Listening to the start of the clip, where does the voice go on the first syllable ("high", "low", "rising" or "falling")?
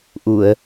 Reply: low